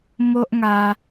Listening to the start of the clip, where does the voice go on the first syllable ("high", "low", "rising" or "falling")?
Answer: high